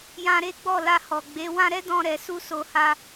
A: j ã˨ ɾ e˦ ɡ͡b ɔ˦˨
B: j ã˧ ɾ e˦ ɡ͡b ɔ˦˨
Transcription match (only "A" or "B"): B